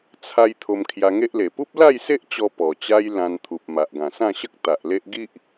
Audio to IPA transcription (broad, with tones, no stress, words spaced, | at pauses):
t͡sʰa˧j t̪ʰo˧mkʰja˧ŋe˦ʔle˨˩ pu˦p̚la˥˧jse˦ʔ t͡ɕɔ˧ pɔ˨˩ t͡ɕa˦jlã˧nt̪ʰu˨p̚ ma˨ʔɡã˨˩sã˥˧ɕə˦k̚ t̪a˨ʔle˦ʔ ɡi˦ʔ